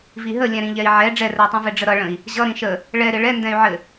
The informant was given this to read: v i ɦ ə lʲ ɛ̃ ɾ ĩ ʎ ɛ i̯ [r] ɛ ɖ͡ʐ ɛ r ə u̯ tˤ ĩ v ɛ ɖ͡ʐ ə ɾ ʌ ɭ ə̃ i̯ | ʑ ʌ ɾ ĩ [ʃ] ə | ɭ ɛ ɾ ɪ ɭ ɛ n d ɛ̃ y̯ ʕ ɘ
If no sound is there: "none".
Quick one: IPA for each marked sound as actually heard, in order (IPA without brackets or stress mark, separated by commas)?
ʕ, ʃ